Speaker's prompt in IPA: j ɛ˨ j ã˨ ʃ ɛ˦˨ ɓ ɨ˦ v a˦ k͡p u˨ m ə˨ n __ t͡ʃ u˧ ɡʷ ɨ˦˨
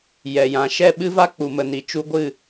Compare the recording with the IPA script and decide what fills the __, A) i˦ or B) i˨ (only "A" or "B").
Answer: B